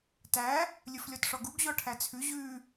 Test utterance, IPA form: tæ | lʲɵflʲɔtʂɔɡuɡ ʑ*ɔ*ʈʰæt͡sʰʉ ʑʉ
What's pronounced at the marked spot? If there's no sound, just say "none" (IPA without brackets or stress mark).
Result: ɔ